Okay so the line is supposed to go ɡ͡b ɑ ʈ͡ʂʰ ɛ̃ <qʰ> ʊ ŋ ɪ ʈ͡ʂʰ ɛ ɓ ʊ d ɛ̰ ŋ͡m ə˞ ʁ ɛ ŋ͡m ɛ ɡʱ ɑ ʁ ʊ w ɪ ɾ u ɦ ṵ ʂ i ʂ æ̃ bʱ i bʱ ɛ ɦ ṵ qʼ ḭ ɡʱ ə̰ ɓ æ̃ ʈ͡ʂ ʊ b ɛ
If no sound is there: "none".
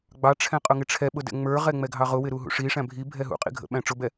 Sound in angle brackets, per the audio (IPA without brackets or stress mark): qʼ